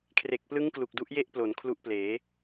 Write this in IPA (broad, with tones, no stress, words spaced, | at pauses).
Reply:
kʰre˨˩k̚plɯ˦˥ŋ klu˨˩k̚du˦˥ʔ je˥˩ʔplo˩˦n kʰlu˦˥ʔpleː˩˦